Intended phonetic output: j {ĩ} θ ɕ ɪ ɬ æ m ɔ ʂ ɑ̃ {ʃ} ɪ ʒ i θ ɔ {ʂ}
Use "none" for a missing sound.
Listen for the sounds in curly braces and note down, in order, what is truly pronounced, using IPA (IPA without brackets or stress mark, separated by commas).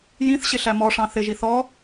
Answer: ĩ, θ, none